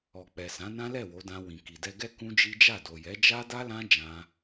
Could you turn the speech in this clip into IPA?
ɔ˨ k͡p ɛ˨ s ã˨˦ n ã˦ l ɛ˦˨ w o˨˦ d ã˧ w ĩ˨ k i˨ d ɛ˧ ɡ ɛ˦ k ũ˦ d͡ʒ i˦ d͡ʒ a˦˨ d o˨ j ɛ˨˦ d͡ʒ a˦ d a˦ l ã˦ d͡ʒ ã˧

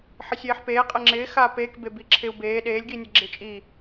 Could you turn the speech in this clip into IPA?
ħ ɪ sʲ eː ħ p eː qʼ e ŋ͡ǁ ɪː x aː p eː k b e b i ǁʰ ɪ u̯ b eː ɗ eː lʲ ɡ iː nʲ ɛ ɡ͡ǁ ɪ t͡ʃʼ i

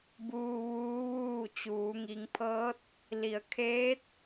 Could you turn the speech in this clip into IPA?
b uː˧ ʋ uː˧˥ ʋ uː˥˨ t͡ɕ uː˩˧ ŋ i˩˧ ŋ pʰ ɤː˧˥ t̚ | l i˩ ə̯ kʰ eː˧˥ t̚

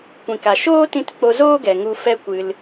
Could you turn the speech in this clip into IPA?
kʷ ĩ˨ k a˨ ʃ oː˦ t ĩ˧ t k͡p o˧ z oː˦ ɡ ɛ˨ ŋ u˧ f ɛ˦ kʷ ɨ˧ l

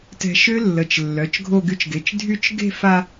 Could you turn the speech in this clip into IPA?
t ɛ̤˧ ʃ ø˦˥ lː ə˩˧˩ t͡ʃ lː œ˩˧˩ t͡ʃ ɡʱ o˥˧ ɡ y˦˥ t͡ʃ ɡ e˩˧˩ t͡ʃ dʱ y˥˧ t͡ʃ ɡ e̤˥˧ f a˧

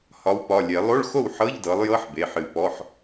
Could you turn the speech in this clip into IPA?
h ɒ˨˦ w p ɒ˩˧˩ lʲ e˨˩˦ lˠ o˧˥˧ ɭ x o˥˩ w ħ ɤ˧˥˧ ʎ d ɤ˨˦ lˠ j ɤ˧˥˧ ħ b e˩˧˩ ħ ɨ˨˩˦ p ɔ˩˧˩ ħ

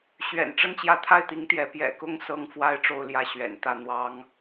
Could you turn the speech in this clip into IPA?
ɕ ɥ ɛ̰˨˩ n ʈ͡ʂ ə˥˧ n t͡ɕ j ä˥˧ t̪ʰ a˥˩ ɪ̯ t̪ i˧˥ ŋ t̪ j ɛ˧˥ p j ɛ̰˨˩ k ʊ˥ ŋ s ɤ˥ ŋ f w a˥ ɪ̯ ʈ͡ʂ o˥˧ ʊ̯ l j ä˥˩ ɕ ɥ ɛ̰˨˩ n t̪ ä˥˩ n̪ w ɑ˥ ŋ

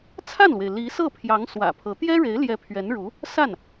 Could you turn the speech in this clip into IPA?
t͡sʰ a˥˩ n l w e˩ ɪ̯ l i˧˥ s ɤ˥˩ pʰ j ɑ˧˥ ŋ s w ä̰˨˩ pʰ ɤ˧˥ t̪ j ɛ˥ ɻ e˧˥ ɪ̯ l j ɛ˧˥ pʰ ɥ ɛ˧˥ n ɻ u˧˥ | s a˥˩ n

